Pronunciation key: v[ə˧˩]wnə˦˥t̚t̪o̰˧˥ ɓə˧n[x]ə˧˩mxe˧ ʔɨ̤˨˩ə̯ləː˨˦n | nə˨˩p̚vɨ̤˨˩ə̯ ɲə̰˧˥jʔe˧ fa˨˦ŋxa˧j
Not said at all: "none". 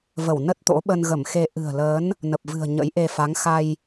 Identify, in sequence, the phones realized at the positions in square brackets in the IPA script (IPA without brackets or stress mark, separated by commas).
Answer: ə˧˩, ɣ